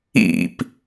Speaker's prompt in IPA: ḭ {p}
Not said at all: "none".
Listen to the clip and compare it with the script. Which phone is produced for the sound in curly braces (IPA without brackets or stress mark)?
p